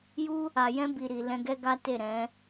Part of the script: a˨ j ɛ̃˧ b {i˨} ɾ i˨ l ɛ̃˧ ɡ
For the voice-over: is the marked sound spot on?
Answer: yes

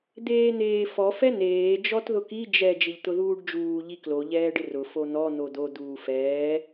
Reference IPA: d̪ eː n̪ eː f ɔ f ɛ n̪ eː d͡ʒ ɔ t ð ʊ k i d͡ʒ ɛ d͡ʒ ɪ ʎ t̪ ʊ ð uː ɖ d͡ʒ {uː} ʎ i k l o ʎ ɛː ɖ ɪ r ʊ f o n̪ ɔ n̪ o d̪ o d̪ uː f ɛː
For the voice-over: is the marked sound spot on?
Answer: yes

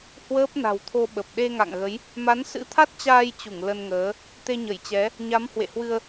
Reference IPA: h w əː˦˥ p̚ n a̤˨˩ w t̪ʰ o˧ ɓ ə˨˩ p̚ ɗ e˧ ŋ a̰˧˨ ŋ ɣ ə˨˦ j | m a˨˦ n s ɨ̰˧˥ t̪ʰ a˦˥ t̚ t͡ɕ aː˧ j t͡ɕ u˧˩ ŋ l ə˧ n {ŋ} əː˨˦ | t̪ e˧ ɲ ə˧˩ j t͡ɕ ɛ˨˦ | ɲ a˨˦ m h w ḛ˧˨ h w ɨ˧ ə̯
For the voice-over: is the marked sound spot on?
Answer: yes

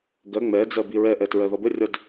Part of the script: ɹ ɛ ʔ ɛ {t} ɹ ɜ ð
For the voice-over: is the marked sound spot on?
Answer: yes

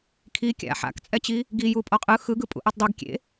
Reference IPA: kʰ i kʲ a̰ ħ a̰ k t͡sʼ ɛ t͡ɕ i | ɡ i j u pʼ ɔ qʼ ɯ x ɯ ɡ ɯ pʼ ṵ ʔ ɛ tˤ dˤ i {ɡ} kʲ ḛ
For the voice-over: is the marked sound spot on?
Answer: yes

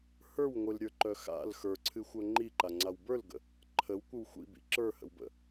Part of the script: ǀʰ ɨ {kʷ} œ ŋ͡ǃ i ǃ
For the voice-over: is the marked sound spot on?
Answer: no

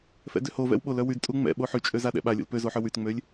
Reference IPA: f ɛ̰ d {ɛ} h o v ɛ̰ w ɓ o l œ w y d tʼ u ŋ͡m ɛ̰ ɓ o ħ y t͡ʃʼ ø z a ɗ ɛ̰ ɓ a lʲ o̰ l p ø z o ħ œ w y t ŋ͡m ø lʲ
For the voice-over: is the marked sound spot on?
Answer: no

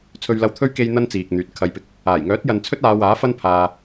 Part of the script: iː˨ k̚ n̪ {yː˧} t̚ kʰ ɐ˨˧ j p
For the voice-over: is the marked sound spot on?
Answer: no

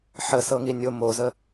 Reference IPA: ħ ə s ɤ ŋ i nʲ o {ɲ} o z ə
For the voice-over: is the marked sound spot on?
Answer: no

